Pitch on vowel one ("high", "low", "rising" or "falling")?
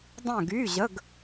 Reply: falling